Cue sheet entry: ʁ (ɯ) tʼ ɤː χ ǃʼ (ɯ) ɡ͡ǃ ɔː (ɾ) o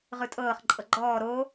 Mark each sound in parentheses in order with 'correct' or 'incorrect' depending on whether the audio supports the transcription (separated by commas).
correct, incorrect, correct